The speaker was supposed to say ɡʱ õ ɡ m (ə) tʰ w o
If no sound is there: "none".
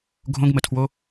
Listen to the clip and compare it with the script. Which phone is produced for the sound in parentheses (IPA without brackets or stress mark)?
ə